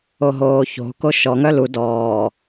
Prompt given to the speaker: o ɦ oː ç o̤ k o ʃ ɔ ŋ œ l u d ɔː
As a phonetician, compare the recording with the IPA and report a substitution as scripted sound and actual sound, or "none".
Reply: none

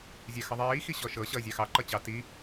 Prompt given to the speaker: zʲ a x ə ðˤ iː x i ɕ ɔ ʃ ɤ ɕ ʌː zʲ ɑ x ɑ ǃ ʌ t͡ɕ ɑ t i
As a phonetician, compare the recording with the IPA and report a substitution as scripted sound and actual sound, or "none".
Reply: none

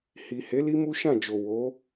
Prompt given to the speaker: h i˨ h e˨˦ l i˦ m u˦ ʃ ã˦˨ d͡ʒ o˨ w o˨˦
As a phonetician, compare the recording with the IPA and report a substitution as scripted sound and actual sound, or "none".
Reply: none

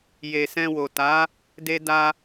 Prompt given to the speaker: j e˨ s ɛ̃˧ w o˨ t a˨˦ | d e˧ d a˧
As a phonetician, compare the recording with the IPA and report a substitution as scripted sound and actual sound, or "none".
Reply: none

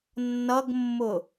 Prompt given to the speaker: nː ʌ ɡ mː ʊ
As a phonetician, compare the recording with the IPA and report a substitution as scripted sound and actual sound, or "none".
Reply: none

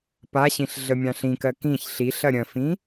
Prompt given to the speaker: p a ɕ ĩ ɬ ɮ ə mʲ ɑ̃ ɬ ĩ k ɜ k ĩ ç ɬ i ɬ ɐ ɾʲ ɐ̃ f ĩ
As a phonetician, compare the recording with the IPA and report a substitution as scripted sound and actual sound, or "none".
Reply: none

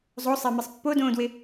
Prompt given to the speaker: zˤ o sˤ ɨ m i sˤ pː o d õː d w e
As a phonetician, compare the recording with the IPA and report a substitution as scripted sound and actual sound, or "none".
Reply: ɨ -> e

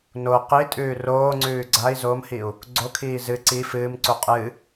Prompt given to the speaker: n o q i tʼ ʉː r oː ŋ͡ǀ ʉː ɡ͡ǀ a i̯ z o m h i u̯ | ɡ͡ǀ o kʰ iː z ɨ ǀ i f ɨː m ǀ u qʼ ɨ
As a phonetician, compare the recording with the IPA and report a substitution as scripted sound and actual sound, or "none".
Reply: none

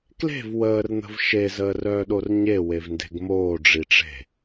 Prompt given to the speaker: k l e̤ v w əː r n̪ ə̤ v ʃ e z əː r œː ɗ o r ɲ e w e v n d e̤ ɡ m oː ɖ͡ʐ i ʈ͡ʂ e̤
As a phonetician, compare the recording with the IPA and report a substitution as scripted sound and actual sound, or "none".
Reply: none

